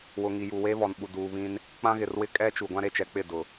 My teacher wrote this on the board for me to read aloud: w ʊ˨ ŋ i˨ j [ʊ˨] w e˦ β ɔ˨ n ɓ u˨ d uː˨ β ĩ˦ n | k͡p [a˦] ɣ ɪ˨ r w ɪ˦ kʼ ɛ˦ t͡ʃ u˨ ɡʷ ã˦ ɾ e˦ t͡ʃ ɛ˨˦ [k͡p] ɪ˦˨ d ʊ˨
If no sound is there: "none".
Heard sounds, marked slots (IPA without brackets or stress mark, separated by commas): u˨, ã˦, k͡p